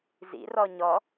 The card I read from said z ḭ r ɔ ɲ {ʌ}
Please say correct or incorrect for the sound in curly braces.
incorrect